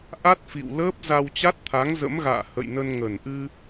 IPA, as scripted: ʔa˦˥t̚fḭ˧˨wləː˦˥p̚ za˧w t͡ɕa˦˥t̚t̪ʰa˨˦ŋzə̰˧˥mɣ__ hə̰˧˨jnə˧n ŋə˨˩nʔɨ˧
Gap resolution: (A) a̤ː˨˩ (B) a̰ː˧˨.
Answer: B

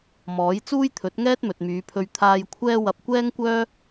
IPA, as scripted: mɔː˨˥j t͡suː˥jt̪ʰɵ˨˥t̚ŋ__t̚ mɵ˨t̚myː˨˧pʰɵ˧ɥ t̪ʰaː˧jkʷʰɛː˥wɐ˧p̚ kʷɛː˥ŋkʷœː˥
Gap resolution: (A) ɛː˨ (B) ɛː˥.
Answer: B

